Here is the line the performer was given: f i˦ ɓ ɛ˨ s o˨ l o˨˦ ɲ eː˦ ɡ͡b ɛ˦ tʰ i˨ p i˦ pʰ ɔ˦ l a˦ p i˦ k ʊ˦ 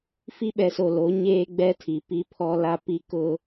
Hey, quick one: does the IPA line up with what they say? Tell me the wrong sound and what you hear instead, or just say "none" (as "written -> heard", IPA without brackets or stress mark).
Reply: none